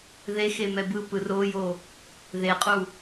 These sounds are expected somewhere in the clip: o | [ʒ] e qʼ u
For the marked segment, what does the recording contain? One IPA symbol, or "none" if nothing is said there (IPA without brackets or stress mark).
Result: ð